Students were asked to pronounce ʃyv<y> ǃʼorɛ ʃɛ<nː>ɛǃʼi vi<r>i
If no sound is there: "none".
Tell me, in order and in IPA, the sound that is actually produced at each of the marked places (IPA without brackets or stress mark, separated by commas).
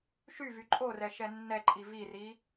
y, nː, r